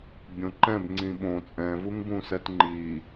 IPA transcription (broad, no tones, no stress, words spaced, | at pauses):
bʲõǃɛ̃b ŋ͡ǀĩɓõ t͡sʼɛ̃vuŋbũsɛt ŋ͡ǃi